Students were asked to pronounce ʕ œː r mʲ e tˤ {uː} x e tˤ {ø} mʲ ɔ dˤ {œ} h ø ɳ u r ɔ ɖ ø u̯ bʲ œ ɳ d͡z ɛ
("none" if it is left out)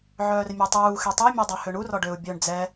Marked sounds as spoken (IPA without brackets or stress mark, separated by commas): uː, ø, œ